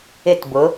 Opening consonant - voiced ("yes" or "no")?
no